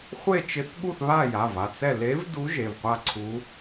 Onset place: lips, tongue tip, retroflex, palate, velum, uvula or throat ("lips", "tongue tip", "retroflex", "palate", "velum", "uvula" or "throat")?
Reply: uvula